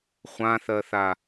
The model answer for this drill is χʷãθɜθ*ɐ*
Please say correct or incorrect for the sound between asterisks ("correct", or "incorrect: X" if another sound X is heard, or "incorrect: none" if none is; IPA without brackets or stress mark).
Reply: incorrect: a